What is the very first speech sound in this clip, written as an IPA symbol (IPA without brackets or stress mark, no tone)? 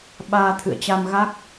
ɓ